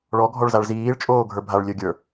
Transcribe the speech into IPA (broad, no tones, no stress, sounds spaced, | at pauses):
ɭ ɔ ɡʱ ɔ ɭ z a ɭ z iː ɭ t͡ʃʼ oː ɡʱ ə˞ bʱ a ɭ lʲ ɵ ɡʲ ə˞